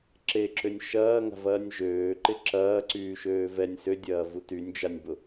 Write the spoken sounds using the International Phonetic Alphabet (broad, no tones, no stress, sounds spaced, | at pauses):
ǁ e ǁ ʏ nʲ ʃ ɐː ŋ a̤ v ɐː nʲ ʒ øː ǃ ɪ ǁ ɐː ǀ yː ʃ øː v ɛ nʲ s ʏ dʲ ɐː v u t y nʲ d͡ʒ a nʲ b ʊ